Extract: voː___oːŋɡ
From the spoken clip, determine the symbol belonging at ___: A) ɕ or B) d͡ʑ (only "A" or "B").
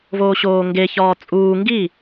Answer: A